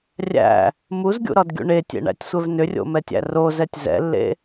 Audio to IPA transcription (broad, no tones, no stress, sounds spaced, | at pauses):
rʲ æ̰ | m u z ɡʲ ṵ ɾ ɒ d ɡʲ ṵ ɳ e tʲ ḛ ɳ æ̰ tʲ sʷ ɛ v n ʏ rʲ o̰ m ɛ tʲ æ̰ r o z ɛ tʲ z ɛ̰ lː ḛ